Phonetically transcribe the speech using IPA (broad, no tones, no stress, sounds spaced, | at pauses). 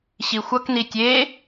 ɕ i xʷ ʌ k n i tʲ e